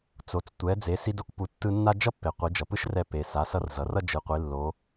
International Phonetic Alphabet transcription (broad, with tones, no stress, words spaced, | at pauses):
t͡so˩t͡s tʷɛ˩˧d͡ze˩˧ si˧do˧kpu˩˧tːɯ˧ nːa˥ d͡ʒʌ˥pːe˩ qʷi˩˧d͡ʒʌ˩pɯ˥ʃrɛ˧ pe˩ sa˩˧sʌ˧r zʌ˩˧rʌ˥ d͡ʒɯ˩˧qʷi˩˧ lːo˧˥